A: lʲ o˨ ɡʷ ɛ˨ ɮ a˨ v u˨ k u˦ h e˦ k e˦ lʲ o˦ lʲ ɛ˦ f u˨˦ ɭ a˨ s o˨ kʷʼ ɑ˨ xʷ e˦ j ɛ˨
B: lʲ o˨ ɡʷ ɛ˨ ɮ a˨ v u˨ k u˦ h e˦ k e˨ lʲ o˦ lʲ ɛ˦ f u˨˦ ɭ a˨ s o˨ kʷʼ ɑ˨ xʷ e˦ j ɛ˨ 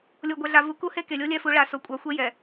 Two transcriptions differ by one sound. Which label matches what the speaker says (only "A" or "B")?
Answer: B